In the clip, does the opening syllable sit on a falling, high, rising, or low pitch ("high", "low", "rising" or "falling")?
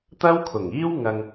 high